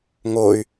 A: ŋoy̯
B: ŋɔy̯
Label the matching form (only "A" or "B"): A